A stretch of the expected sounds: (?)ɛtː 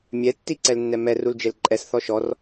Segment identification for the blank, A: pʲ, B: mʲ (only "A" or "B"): B